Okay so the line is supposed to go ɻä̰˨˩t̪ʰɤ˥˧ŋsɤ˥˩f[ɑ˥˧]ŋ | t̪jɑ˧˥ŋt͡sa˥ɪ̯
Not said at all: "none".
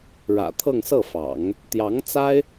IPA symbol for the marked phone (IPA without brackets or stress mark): ɑ̰˨˩˦